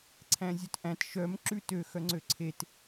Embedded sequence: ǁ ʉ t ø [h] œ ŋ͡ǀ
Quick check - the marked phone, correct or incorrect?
incorrect: x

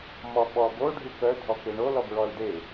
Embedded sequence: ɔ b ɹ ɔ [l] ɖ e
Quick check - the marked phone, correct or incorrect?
correct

